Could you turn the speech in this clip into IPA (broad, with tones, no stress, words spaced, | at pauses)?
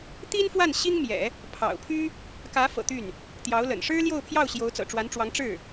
t̪i˥nfwa˥˩n ɕi˥ŋmjɛ̰˨˩˦ | pʰɑ̰˨˩ʊ̯pʰy˥ | kä˧˥fɤ̰˨˩ t̪y˥˩n | t̪jɑ˧˥ʊ̯lə̰˨˩n ʂɻ̩˥ljo˥˧ʊ̯pʰjɑ˥˩ʊ̯ɕjo˧˥ʊ̯ t͡sɤ̰˨˩ʈ͡ʂwa˧˥nʈ͡ʂwɑ˧˥ŋ ʈ͡ʂɻ̩˥˩